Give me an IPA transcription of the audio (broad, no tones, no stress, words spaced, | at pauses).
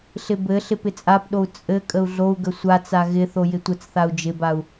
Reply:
ɬɪbɘɬɪp ɪt͡sʼapɗou̯ t͡sʼɘ kʼəu̯ɮou̯ɡə sʷat͡sa ɣɪθo jɪtʷət͡sθau̯ d͡ʒɪbau̯